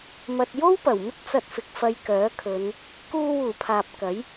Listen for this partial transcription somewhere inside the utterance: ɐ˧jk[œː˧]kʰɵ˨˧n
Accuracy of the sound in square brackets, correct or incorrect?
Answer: incorrect: œː˨˥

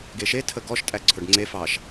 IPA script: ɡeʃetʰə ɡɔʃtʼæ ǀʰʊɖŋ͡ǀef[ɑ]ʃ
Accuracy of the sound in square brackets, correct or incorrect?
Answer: correct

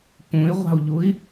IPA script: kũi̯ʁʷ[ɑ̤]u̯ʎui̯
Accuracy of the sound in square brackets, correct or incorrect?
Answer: correct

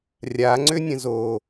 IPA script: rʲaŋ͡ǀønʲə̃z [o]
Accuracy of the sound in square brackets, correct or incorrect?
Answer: correct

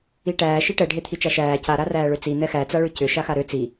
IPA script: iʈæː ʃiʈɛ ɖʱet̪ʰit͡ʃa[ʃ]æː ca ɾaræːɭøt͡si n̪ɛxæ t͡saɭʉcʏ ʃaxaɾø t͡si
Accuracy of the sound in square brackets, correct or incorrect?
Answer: correct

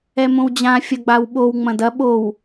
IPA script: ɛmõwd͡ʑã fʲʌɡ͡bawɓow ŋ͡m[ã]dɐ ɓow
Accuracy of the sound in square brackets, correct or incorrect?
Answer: incorrect: ɐ̃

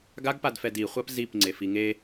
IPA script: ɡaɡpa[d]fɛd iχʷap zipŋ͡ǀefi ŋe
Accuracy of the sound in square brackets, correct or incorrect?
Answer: correct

